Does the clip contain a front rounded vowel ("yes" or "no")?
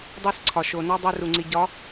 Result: no